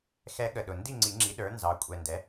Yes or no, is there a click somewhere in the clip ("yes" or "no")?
yes